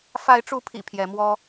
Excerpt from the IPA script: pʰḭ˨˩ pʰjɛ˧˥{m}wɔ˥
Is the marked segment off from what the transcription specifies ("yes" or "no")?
no